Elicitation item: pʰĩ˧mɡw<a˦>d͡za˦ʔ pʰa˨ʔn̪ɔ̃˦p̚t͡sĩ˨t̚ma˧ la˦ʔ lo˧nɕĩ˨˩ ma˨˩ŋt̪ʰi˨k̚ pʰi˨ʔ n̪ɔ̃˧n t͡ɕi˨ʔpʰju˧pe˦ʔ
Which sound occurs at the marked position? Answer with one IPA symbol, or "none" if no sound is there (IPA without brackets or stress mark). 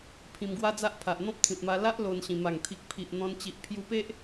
a˦